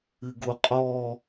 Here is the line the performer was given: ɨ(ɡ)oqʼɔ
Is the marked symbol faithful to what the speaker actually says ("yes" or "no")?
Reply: yes